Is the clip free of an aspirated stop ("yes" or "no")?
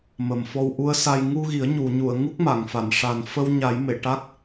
yes